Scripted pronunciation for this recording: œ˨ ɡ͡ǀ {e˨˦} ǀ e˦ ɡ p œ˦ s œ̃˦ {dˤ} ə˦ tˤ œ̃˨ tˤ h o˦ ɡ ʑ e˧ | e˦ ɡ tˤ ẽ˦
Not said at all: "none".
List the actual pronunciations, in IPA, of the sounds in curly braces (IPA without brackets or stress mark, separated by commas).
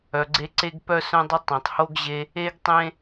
e˧, dˤ